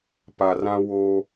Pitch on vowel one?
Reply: low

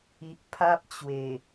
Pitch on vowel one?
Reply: low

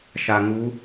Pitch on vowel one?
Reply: low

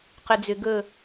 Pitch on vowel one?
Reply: low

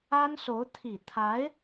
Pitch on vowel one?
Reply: high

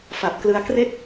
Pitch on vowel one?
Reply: low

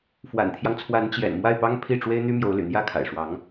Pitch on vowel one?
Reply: low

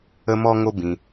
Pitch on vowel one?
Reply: high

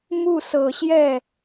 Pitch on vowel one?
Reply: falling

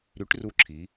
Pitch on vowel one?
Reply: rising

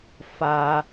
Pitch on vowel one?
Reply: high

